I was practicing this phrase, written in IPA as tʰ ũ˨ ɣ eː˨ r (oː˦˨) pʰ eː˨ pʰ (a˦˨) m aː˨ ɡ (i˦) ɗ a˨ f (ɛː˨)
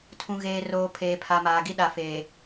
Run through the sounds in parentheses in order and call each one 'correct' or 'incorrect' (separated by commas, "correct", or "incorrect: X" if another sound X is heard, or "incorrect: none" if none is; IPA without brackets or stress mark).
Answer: incorrect: oː˨, incorrect: a˨, correct, incorrect: eː˨